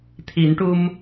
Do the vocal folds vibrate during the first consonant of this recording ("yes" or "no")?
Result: no